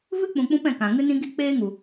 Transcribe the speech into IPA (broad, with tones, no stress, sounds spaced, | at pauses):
v ɨ˦ k͡p ũ˨ k͡p ũ˧ p ɛ̃˨ k ã˨ ŋ ɨ˦ n ĩ˦ ɡ i˦ k͡p eː˦ ŋ u˨